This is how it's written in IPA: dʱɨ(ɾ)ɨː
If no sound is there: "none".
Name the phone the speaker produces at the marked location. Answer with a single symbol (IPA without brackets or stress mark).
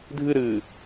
ɾ